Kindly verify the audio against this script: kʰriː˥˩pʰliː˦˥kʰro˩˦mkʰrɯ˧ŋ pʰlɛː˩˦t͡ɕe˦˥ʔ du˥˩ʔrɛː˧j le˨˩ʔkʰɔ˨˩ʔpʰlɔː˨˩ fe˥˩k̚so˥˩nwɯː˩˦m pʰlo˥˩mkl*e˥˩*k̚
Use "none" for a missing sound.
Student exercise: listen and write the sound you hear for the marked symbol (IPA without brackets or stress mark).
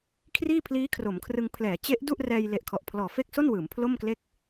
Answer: e˥˩